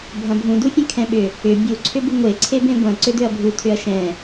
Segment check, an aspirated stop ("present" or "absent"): present